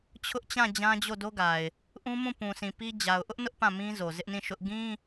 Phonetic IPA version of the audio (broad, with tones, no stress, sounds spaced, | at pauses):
t͡ɕʰ ʊ˦ ʔ t͡ɕ ã˦˨ d͡ʑ ã˦ d͡ʑ o˦˨ d o˦ ɡ a˨ ɪ̯ | ʔ ũ˦ m ũ˦˨ p ũ˨ s ĩ˨ p i˦ d͡ʑ a˨ ʊ̯ ʔ ʊ˦ ʔ n ʊ˦ ʔ p ã˦˨ m ĩ˦ z o˨ z ɪ˦ ʔ n ĩ˦˨ ʃ ʊ˦ ʔ ɡ ĩ˦